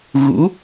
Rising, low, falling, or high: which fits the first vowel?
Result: rising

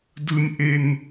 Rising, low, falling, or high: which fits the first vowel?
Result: high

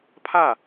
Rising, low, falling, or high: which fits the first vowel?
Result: falling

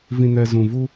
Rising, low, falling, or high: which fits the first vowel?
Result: low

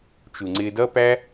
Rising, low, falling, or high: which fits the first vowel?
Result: low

